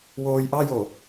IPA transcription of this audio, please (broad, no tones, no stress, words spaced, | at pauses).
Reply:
woːjʔɑjo